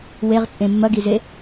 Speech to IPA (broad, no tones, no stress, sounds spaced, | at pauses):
w e ʁ t͡sʼ ẽ mː ɐ ɡ i z e